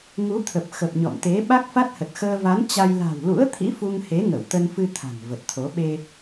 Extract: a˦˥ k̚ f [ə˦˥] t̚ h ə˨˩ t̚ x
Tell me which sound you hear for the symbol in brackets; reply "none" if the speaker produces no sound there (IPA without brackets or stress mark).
a˦˥